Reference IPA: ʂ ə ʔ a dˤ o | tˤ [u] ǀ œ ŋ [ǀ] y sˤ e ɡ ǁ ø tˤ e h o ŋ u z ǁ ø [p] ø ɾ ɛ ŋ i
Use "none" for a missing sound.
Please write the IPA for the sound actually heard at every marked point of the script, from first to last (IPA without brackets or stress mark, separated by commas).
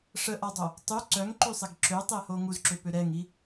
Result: y, ǃ, p